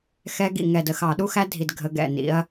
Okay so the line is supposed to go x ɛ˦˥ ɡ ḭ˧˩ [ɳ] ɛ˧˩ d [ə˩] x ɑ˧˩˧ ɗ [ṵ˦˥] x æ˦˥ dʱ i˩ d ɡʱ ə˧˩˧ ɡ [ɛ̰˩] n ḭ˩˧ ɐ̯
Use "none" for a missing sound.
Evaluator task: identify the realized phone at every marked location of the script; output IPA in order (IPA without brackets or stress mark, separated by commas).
ŋ, ə˧˩, u˦˥, ɛ̰˧˩